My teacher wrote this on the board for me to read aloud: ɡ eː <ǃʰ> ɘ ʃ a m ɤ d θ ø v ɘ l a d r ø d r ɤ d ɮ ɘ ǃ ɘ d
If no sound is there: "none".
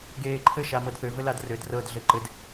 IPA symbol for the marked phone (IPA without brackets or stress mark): ǃʰ